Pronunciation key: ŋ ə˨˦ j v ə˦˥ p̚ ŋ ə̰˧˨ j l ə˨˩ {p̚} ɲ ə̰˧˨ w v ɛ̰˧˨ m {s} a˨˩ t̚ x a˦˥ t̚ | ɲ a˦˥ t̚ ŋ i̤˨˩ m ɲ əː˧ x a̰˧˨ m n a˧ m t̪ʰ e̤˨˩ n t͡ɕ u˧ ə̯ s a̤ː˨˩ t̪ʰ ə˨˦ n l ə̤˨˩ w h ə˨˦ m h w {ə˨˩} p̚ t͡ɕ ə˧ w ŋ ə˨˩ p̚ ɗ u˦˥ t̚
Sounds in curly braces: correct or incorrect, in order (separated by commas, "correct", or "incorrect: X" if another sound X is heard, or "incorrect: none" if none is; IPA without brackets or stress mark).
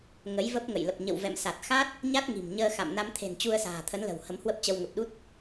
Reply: correct, correct, incorrect: ə˦˥